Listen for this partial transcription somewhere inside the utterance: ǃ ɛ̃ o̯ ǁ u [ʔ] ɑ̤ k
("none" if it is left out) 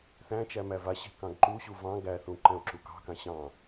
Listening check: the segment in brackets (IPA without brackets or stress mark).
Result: k